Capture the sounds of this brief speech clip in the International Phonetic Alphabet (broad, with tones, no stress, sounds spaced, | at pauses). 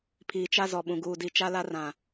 pʰ iː˨ t͡ʃ a˦ z ɔ˨ ɓ ũ˨ ɡ uː˨ d i˨ t͡ʃ a˦ l a˦ r ã˨